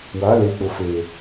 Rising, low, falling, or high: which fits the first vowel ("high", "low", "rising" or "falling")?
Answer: rising